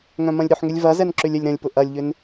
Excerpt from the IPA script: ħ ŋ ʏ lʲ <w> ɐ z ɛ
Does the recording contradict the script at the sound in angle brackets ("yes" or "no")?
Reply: yes